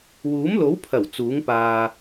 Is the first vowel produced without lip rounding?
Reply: no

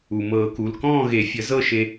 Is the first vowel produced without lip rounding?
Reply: no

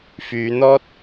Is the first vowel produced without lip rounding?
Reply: no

